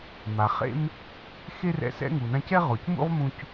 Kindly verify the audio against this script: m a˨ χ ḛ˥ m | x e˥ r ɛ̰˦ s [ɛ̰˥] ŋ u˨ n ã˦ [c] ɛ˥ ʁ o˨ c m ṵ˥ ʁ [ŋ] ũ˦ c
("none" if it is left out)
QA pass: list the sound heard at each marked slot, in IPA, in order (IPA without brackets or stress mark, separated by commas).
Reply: ɛ̰˥, c, m